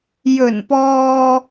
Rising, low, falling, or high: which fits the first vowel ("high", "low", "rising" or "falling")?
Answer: low